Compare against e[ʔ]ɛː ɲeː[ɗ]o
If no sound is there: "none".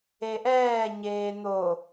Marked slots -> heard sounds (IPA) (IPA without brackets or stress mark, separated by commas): ʔ, n̪